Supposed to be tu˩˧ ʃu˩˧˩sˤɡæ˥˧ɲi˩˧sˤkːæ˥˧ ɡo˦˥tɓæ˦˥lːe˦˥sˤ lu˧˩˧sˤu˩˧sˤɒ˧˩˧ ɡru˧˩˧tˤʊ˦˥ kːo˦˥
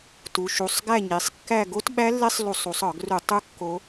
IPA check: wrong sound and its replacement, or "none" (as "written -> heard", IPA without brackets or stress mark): ʊ˦˥ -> u˦˥